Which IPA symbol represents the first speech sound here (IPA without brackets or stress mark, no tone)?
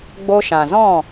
ɡ͡b